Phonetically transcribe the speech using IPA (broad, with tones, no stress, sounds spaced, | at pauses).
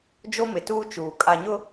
d͡ʒ o˦ m ɪ˨ t uː˦ t͡ʃ uː˨ kʼ a˨ ɲ ʊ˦